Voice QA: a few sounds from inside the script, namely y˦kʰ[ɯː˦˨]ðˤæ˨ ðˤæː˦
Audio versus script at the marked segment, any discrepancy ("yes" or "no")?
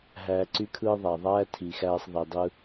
yes